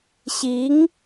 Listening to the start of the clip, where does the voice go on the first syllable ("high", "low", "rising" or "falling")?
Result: rising